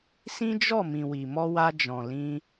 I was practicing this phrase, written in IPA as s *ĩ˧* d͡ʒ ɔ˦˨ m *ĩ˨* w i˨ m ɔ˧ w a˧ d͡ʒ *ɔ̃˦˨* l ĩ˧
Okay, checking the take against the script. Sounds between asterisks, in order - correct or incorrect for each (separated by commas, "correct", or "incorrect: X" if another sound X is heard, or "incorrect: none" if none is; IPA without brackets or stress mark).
incorrect: ĩ˦, correct, incorrect: ɔ̃˨